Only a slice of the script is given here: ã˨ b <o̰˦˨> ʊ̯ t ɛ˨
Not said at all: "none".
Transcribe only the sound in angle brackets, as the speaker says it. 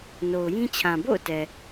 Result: o̰˦˨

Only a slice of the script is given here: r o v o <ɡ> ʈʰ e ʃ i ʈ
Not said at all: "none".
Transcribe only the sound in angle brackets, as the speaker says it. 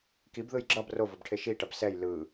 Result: b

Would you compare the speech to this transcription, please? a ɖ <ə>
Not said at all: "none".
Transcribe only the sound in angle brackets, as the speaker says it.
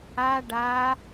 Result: a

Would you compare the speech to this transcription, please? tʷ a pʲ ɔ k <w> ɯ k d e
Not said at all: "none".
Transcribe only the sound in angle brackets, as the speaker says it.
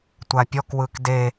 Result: w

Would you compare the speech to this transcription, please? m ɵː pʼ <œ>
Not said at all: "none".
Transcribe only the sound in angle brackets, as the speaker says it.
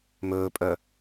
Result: œ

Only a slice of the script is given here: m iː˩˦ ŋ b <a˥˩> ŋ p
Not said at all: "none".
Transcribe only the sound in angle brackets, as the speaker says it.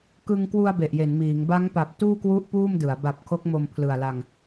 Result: a˦˥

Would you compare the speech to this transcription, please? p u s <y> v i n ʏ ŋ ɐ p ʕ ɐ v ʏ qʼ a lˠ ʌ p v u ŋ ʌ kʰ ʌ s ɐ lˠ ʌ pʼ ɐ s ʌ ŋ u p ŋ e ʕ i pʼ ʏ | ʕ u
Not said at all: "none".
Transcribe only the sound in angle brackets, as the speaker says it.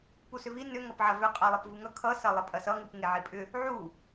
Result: ʏ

